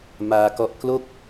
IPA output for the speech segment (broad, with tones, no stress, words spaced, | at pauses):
maː˧kɔ˦˥ʔ klo˥˩k̚